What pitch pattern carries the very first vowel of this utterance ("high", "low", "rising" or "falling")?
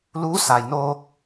rising